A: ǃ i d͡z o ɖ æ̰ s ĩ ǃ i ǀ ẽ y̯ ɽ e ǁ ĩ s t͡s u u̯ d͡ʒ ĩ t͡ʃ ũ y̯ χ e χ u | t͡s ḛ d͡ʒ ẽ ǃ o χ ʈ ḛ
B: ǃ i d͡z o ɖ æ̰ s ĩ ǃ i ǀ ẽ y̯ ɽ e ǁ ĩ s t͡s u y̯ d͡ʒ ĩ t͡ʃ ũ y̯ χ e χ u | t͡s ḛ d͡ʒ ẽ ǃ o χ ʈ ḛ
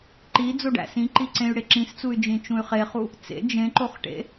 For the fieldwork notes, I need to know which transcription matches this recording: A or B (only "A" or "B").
B